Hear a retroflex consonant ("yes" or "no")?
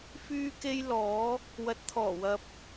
no